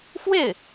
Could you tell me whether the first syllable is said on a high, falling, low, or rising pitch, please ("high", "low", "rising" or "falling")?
falling